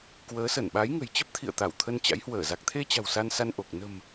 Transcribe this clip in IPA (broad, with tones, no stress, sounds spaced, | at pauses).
k w əː˨˦ s ə˧˩ n ɓ a˨˦ j ŋ ə̤˨˩ j t͡ɕ ə˦˥ p̚ t̪ʰ ḭ˧˨ ə̯ t̪ a˧˩ w t̪ʰ ə˧ n t͡ɕ a̰˧˥ j h w əː˧˩ z a˨˩ k̚ t̪ʰ e˧ t͡ɕ a̤˨˩ w s a˧ n s a˧ n ʔ o˨˩ k̚ n ə̤˨˩ m